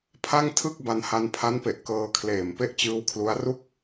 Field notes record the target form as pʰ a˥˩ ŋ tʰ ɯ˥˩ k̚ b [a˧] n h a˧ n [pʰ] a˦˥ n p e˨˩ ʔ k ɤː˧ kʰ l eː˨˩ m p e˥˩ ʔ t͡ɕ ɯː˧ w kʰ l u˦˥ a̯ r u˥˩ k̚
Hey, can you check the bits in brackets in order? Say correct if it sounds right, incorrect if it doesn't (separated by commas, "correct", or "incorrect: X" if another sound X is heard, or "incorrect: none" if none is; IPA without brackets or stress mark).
correct, correct